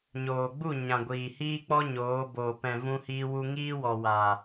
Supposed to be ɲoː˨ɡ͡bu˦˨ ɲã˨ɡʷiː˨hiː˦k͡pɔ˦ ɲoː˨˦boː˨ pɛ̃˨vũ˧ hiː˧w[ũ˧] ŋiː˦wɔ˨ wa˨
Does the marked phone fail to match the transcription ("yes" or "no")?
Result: yes